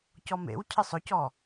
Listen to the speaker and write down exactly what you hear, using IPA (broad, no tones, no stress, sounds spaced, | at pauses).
c ɔ m ḛ w cʰ ɪ sˤ ʊ c ɔ